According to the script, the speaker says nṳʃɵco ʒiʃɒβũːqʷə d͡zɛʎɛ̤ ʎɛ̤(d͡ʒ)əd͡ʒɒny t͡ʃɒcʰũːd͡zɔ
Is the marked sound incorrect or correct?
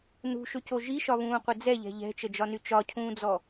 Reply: incorrect